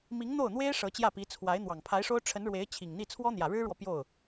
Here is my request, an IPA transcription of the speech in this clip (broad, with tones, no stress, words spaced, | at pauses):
mi˧˥ŋn̪o˥˩ʊ̯n̪we˥ɪ̯ ʂɤ˧˥t͡ɕjä˥˩pi˧˥ t͡sʰwa˧˥ɪ̯ n̪wɑ˨˩ŋpʰa˧˥ɪ̯ʂo˥ʊ̯ ʈ͡ʂʰə˧˥nɻwe˧˥ɪ̯ t͡ɕʰi˨˩ŋn̪i˥˩ t͡sʰwɔ˥n̪jä˨˩ɻɻ̩˥ɻwɔ˨ pjo˥˩ʊ̯